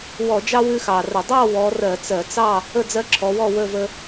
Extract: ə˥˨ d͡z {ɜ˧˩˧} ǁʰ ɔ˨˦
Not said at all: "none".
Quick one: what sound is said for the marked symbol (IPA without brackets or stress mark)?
ɜ˦